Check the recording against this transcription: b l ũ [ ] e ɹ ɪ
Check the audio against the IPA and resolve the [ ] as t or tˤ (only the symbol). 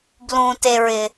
t